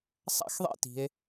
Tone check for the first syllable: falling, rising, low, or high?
high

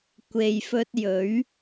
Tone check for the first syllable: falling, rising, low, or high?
low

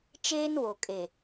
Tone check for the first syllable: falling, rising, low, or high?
high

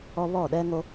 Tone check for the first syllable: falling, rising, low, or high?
high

